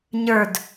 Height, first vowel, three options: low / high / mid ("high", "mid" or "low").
mid